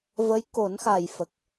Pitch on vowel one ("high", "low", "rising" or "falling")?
rising